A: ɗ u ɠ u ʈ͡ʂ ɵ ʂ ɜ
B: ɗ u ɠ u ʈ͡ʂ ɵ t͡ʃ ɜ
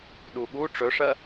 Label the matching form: A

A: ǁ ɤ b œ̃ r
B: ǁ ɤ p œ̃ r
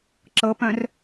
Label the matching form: B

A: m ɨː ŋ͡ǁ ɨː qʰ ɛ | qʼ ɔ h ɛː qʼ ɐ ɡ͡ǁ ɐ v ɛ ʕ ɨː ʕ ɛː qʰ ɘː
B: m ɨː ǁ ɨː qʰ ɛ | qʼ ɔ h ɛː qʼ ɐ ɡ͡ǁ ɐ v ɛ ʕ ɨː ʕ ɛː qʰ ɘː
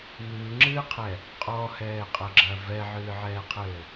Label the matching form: A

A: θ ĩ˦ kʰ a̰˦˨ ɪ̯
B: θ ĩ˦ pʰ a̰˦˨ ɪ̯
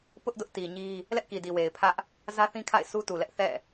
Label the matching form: A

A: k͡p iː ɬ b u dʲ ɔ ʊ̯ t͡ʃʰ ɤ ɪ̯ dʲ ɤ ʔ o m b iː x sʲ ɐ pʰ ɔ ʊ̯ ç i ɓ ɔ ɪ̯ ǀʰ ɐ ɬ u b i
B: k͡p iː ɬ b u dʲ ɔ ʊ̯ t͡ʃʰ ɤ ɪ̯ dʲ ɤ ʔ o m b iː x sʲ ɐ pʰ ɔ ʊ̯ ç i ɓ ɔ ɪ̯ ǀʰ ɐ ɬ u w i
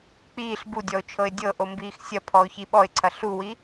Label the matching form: B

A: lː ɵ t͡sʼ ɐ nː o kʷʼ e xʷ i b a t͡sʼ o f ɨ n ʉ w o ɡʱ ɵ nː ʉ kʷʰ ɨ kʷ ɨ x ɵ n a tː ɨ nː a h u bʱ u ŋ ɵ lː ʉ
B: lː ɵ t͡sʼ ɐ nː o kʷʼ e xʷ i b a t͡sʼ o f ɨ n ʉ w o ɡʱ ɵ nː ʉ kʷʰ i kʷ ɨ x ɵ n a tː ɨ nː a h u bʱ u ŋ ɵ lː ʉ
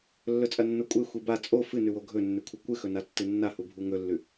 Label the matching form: A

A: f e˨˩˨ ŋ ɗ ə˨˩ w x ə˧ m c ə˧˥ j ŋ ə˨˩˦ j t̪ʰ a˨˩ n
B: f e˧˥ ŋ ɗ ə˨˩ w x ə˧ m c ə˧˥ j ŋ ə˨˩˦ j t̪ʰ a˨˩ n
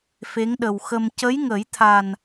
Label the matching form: B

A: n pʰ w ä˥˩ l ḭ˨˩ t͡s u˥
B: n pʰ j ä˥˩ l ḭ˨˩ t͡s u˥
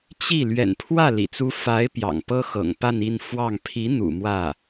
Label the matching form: A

